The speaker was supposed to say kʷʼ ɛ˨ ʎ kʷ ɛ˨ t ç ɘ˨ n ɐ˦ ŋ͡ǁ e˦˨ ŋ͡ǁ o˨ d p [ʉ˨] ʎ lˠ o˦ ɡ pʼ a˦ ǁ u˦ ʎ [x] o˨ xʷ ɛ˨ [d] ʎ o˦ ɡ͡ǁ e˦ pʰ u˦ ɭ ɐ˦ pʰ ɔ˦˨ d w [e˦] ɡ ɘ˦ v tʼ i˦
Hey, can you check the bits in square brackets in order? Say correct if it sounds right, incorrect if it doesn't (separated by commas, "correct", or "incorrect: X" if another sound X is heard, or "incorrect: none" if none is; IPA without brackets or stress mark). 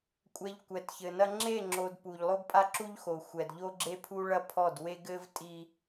incorrect: u˨, correct, correct, correct